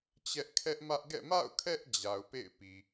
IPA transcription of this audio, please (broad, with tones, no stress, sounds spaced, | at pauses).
t͡ɕ ɛ˦ ʔ kʰ ɛ˦ ʔ m ä˦ ʔ ɡ ɛ̰˦˨ m a̰˦˨ ʊ̯ kʰ ɛ˦ ʔ d͡ʑ a˨ ʊ̯ p ḛ˦˨ ɪ̯ p i˨